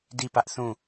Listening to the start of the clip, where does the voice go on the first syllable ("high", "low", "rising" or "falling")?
falling